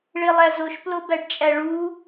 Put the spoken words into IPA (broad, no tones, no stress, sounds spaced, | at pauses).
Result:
ɭ e lˠ æ z o ʃ p l o b æ ɖ t͡ʃʼ æ ɭ u